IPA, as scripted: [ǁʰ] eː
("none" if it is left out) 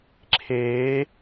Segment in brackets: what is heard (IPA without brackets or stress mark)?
ǁʰ